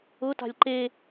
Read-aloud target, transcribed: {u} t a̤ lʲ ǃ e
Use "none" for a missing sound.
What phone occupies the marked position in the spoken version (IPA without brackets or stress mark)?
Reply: ʊ